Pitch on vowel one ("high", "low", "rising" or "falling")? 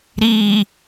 low